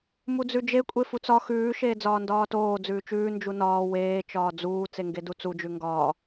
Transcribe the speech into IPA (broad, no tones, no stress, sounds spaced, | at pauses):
m u d͡z ʉ d͡ʒ e kʷʼ e f u t͡s ɒ x ʉː ʃ eː d͡z ɒː n d ɒː t oː d͡z ʉː t͡ʃ ʉː n d͡ʒ u n ɒː w eː t͡ʃ ɒː d͡z uː t͡s e ŋ ɡ e d u t͡s u d͡ʒ ʉ ŋ ɡ ɒː